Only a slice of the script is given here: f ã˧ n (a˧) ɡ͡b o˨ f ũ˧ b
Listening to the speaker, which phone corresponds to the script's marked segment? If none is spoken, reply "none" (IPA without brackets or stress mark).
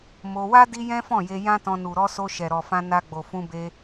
a˧